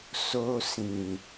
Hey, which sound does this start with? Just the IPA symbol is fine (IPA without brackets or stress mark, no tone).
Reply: s